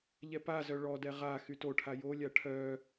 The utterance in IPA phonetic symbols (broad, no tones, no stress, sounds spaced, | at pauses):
ʎ ɛ p a z œ ɭ ɔ d ɛ ʁ a x y t o ʈʰ a j o lʲ a ʈʰ œ